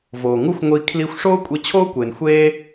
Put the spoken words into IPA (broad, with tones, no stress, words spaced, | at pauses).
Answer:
voː˨ŋu˦xʷŋʷi˧ kʰli˧xʷʂoː˦ kʷʼi˦ t͡ɕʰoː˦kʷe˨nxʷeː˦